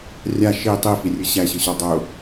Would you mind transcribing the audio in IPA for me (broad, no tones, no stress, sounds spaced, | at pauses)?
rʲ a ʃ i tˤ i f i rʲ ɯ ɕ æ ɕ ɯ ɕ ɔ dˤ ʊ